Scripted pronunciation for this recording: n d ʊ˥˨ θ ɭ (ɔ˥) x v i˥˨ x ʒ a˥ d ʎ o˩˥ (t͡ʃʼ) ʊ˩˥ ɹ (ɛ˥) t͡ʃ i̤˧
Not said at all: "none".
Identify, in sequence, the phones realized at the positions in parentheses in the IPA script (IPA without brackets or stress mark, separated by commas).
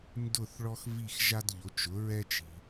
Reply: ɔ˥, t͡ʃ, ɛ˥